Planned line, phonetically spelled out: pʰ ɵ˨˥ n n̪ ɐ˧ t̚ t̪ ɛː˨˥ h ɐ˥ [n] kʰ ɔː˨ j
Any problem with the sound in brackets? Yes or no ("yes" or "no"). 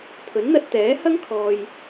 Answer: yes